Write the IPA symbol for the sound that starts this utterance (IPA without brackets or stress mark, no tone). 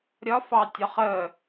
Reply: ɾʲ